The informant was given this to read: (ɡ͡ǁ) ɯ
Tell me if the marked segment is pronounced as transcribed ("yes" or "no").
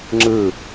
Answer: no